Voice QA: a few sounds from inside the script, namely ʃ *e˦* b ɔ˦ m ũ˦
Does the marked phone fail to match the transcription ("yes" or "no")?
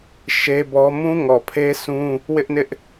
no